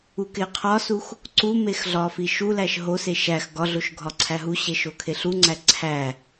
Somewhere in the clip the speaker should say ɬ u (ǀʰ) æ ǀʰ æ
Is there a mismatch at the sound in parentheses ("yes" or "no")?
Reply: yes